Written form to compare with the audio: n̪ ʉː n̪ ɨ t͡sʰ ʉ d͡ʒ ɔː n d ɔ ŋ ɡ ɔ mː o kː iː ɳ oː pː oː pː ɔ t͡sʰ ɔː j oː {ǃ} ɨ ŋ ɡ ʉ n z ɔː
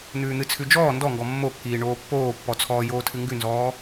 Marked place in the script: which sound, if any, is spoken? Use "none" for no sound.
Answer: tʰ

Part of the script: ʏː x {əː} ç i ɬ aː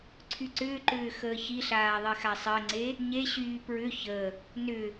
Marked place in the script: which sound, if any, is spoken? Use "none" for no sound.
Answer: əː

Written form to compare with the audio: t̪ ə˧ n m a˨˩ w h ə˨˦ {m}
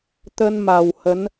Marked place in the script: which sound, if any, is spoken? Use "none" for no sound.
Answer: n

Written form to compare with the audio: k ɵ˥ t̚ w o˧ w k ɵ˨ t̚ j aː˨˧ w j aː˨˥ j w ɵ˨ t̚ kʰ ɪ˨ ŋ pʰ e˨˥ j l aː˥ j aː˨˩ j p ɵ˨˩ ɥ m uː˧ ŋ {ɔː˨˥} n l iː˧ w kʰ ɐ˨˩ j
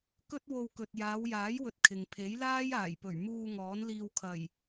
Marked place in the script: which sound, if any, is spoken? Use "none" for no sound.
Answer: ɔː˨˥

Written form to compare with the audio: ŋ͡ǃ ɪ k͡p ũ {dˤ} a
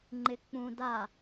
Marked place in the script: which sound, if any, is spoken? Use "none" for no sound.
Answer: d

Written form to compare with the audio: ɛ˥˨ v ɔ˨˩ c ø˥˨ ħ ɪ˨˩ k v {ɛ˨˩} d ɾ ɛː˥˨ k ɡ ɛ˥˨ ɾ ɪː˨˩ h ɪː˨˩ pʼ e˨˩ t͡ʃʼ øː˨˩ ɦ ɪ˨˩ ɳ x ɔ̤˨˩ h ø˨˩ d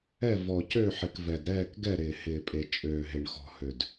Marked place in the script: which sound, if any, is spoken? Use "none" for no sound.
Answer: ɛ˨˩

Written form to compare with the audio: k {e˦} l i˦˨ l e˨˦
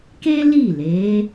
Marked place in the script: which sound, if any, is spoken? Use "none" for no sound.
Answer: e˦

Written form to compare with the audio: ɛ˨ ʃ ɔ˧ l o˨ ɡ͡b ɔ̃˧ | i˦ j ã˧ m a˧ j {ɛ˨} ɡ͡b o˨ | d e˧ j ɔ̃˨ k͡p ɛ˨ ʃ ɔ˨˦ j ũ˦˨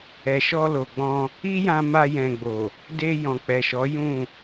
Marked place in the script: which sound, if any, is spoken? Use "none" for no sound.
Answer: ɛ̃˨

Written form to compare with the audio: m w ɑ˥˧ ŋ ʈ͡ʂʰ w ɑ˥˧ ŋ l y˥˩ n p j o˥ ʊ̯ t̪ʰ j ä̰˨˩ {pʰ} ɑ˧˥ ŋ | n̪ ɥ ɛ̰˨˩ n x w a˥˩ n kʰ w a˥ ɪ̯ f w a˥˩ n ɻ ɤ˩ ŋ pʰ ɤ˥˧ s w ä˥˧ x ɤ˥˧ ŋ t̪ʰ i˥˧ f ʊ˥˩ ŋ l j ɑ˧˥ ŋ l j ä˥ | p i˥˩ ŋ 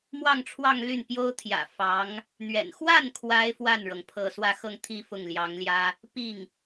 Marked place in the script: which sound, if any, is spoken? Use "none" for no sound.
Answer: f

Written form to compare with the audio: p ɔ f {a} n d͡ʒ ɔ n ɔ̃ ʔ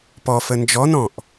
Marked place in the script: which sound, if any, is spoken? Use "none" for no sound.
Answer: ə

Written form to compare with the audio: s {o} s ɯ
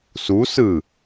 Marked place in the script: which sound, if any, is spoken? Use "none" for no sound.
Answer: u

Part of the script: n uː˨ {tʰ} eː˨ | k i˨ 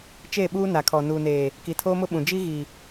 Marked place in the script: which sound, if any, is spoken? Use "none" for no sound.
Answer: n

